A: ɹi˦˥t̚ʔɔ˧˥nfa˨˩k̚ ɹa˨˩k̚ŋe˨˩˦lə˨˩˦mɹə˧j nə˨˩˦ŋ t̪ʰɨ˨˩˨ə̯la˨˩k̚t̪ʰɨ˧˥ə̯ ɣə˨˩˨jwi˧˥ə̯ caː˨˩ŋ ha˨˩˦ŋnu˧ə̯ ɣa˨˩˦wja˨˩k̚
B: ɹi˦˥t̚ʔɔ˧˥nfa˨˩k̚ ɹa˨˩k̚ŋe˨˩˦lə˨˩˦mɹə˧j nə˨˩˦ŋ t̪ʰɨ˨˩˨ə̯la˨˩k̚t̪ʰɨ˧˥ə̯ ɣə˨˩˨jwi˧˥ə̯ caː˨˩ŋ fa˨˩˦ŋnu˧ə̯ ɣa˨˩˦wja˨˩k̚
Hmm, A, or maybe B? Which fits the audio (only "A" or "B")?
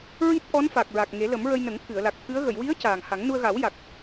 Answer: A